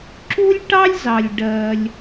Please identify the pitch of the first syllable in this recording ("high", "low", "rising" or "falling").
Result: high